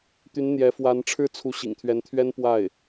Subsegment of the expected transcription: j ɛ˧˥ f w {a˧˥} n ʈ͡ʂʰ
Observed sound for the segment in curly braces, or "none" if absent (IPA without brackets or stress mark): a˧˥